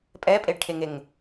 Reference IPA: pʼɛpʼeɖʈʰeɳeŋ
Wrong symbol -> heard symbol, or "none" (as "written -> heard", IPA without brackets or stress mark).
ɳ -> ŋ